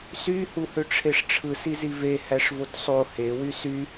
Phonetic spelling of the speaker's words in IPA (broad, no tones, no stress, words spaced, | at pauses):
sy huhøʈ͡ʂʰeʂʈ͡ʂʰɯ sizive hæʂvotsˤo he wysy